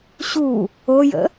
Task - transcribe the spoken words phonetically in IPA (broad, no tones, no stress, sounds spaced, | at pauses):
ɕ u | o j ə̰